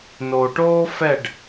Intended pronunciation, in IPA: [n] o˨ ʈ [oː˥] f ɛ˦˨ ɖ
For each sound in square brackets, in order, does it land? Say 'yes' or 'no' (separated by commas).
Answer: yes, yes